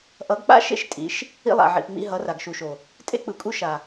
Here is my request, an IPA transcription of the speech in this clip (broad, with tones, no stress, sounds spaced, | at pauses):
ʔ ʌ˨˦ ɡ k͡p a̰˦ ʃ ḛ˦ ʃ tʼ ḭ˨˦ ʃ | ḭ˦ lˠ a̰˨ ʕ ḭ˨ p ŋ͡m ḭ˦ ɦ ʌ˨˦ r a˨ ɡ ʃ u˨ ʃ o˨ | tʼ ḛ˦ k͡p ɯ˨ kʼ u˦ ʃ a˨